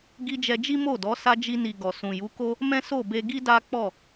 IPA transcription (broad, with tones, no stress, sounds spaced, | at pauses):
ɡ i˧ d͡ʒ ɛ˧ d͡ʒ i˦ m o˦˨ d ɔ˨˦ s a˧ d͡ʒ i˧ n i˨ ɡ ɔ˨ s ũ˨ j u˨˦ k o˦ | m ɛ̃˦ s o˦˨ b e˧ ɡ i˦ d a˦ k͡p ɔ˦˨